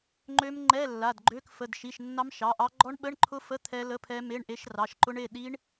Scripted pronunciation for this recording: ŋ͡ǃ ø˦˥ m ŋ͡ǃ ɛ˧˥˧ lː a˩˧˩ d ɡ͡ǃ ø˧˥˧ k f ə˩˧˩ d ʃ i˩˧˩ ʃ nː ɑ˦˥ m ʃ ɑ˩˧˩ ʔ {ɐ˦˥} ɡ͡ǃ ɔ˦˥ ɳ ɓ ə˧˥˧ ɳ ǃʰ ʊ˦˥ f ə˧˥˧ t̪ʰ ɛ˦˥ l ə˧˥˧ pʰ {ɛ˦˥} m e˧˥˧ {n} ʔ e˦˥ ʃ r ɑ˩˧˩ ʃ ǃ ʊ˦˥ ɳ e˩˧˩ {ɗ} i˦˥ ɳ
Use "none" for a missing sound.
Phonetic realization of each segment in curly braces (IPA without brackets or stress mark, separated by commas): ɑ˦˥, ɛ˦˥, ɳ, ɗ